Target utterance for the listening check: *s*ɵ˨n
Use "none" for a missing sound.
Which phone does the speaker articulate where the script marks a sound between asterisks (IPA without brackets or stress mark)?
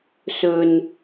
s